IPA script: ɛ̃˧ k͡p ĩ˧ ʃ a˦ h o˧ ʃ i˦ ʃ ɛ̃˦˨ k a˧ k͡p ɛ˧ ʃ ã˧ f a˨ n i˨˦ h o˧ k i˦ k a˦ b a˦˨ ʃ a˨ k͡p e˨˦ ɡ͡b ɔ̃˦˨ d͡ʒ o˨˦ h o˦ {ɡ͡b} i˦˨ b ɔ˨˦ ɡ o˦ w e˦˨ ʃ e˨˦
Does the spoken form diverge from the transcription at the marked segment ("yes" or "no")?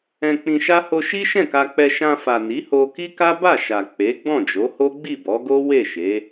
no